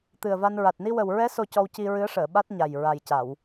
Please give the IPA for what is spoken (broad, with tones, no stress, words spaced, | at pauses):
t̪ɨ˨˩ə̯va˧nɹa˨˩t̚ ni˧wə˨˩wɹɛ˧˥ so˧cɔ˧wci˧ ɹɨ˧˥ə̯ʂəː˨˩˨ ɓa˦˥t̚ɲa˨˩j ɹa˨˩jca˨˩˨w